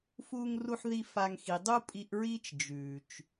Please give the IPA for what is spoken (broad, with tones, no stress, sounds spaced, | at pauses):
f uː˧ ŋ r u˧ ħ ð i˧ f a˧ ŋ x i˨ dˤ u˦ pʼ i˧ ʔ ɹ iː˦ t͡ʃ d͡ʒ ʉː˨ t͡ʃ